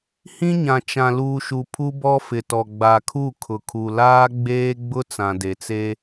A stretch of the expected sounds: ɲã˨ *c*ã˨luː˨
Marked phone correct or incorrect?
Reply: incorrect